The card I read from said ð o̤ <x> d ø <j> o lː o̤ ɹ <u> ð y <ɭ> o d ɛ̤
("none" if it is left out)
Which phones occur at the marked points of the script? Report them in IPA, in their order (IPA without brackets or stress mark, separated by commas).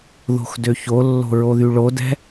x, ç, o, ɭ